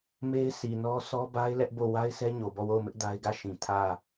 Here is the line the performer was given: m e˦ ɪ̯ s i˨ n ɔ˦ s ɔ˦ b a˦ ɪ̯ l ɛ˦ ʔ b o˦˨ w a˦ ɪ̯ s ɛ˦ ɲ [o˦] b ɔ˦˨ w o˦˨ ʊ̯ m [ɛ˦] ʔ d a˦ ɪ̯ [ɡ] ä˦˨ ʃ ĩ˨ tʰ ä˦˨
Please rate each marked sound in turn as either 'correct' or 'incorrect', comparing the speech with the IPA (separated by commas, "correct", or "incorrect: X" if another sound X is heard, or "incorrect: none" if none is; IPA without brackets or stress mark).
incorrect: o˨, incorrect: ɪ˦, correct